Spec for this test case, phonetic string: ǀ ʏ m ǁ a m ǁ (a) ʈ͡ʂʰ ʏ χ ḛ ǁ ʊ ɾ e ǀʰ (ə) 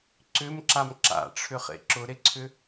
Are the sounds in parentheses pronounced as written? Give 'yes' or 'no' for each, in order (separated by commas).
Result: no, no